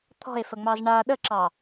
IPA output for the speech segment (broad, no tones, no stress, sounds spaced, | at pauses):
t̪ʰ ɔ̤ e̯ f ə ŋ͡m ɑ z ɳ a ɗ ə ǁ ɑ